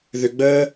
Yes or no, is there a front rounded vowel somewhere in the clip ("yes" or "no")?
yes